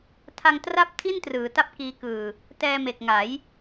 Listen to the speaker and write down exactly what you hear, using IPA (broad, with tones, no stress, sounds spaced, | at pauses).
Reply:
tʰ a˧ ŋ t r a˥˩ p̚ tʰ i˥˩ n t r ɯː˩˦ t a˦˥ p̚ k iː˦˥ k ɯː˧ | t ɛː˧ m e˨˩ k̚ ŋ a˩˦ j